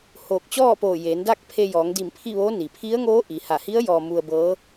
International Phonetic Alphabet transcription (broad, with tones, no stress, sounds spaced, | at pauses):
h oː˧˩ k̚ t͡ɕ ɔː˥˨ p oː˧˩ j eː˩˧ n d a˥˨ k̚ pʰ e˧ j ɔː˩˧ ŋ d i˧˩ m pʰ i˥˨ ʋ oː˧˥ n i˩ pʰ i˧˥ ə̯ ŋ oː˧˥ ʔ i˩ h a˧˩ h i˧˥ ə̯ j ɔː˧ m u˧ ə̯ b ɤː˧˥